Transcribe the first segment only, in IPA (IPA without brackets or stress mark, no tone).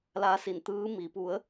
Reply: l